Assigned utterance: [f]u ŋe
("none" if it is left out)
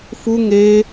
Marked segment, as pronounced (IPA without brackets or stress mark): f